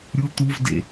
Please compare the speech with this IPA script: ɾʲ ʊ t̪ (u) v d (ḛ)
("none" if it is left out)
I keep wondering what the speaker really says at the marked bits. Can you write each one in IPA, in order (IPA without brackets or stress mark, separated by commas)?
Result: u, ḛ